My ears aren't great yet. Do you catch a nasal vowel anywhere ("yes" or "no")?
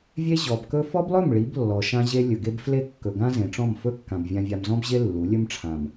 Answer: yes